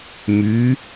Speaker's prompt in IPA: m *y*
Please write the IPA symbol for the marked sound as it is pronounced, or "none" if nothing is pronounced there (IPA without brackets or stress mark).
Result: y